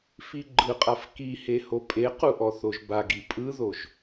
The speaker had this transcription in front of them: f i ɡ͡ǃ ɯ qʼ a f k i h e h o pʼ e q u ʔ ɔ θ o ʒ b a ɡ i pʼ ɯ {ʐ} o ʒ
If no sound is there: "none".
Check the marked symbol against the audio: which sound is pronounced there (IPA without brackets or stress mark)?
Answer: ð